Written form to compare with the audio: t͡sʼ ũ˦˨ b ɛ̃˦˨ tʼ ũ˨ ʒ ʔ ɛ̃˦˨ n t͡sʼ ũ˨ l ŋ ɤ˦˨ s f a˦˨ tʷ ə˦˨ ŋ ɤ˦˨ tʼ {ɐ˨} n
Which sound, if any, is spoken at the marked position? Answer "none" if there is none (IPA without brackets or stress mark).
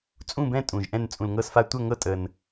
ə˨